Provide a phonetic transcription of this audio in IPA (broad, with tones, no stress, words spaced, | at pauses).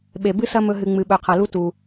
ɓe˩ bɨ˥sɐ˦mɵ˨ɦɨ˩ ŋ͡mɨ˩ɓɵ˩qʰɐ˩lu˦ tu˩